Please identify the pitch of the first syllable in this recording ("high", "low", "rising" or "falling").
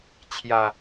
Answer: low